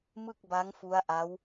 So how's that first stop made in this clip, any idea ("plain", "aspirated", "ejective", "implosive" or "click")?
plain